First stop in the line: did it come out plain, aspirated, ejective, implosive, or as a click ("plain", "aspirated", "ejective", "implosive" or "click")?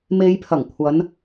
aspirated